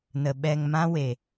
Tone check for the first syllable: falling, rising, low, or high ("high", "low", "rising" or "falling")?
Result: low